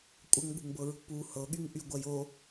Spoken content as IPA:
kʷʼ ɐ ŋ ɠ ṳ ŋ b ɤ ɹ ṳ p u h ɤ ɠ y ŋ ʔ y ɡʷ ɐ j o

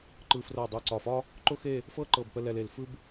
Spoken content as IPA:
ǃ ɯ˧ f r ɤ˧˩ dˤ ɯ˧˩ ǀ ɒ˧˩ f ɒ˥ | ǃ ʊ˥ x e˥˧ | f ɤ˥˧ ǃ ɤ˧˩ b p ə˧ l ɛ˧ l e˧˩ l f ɯ˥ b

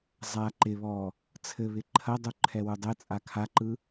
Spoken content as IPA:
zˤ a ǃ ɪ β ɔ | t͡sʰ ɘ β ɪ ǃʰ ɐ dˤ u ǃʰ ɛ w u dˤ ɘ t͡sʼ a kʰ a ǃ ɯ

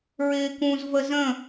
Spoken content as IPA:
ɹ ɪː k ũ z v ə z ə̃

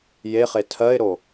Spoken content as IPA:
j e χ e tʰ ɜ ɪ̯ ɾ o

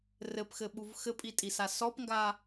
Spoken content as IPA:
r ɘ p x ɘ ɓ u v x ɘ pʼ i tʼ i s a s ɔ p ŋ ɡ a

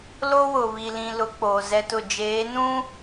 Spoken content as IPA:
l o˦ w ʊ˨ β i˨ l ĩ˨ l ʊ˨˦ k͡p oː˨ z ɛ˦ t ʊ˦˨ d͡ʒ eː˨˦ n ũ˦

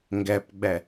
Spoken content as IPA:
ŋ ɡ æ p ɡ͡b æ

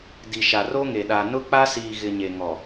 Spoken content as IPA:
d i˨ ʃ a˨ r o˦ ŋ e˨ ɗ a˨ n ʊ˦ k͡p a˦ s iː˨ ɣ ɪ˨ ɲ e˨ ŋ ɔ˨

